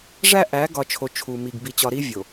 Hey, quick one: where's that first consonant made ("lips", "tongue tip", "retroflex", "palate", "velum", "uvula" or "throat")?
retroflex